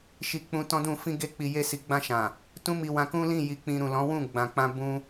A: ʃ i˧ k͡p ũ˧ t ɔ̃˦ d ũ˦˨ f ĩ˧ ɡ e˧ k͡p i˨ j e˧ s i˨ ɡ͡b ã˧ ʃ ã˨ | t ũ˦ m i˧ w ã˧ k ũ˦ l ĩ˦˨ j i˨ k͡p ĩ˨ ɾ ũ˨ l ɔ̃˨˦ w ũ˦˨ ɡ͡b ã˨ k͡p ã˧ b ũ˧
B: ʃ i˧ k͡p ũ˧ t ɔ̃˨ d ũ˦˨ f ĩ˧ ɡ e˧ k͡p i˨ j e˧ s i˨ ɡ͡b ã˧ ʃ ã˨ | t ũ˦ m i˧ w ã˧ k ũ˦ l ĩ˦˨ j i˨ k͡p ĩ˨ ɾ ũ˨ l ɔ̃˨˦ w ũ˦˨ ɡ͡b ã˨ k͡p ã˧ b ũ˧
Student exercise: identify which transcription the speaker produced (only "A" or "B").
A